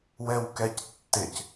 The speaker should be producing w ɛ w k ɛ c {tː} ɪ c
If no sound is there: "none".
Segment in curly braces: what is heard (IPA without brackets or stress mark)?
tː